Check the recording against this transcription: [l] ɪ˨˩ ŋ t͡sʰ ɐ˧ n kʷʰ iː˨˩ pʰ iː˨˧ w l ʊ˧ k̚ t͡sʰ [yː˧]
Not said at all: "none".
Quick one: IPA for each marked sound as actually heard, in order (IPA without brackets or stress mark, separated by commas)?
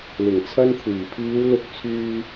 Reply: l, yː˧